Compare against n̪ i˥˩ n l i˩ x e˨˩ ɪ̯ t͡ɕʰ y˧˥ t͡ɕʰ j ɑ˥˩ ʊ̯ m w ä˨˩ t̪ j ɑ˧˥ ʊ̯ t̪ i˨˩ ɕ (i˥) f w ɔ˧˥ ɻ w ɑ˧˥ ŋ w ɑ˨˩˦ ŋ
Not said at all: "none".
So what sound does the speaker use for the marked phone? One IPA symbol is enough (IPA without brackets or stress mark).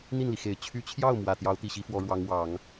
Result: i˧˥